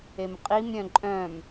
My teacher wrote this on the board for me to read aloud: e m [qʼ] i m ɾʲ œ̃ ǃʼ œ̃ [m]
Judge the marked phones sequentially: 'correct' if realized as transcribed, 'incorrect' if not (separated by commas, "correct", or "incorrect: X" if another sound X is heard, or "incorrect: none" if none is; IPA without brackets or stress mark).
correct, correct